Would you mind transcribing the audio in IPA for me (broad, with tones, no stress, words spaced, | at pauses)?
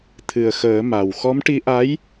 t̪ʰɨ˨˩ə̯xəː˨˩˦ ma˨˩w xɔ˧˥mʈi˧˥ʔa˧˥j